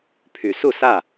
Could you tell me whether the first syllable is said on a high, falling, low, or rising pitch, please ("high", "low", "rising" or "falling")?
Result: low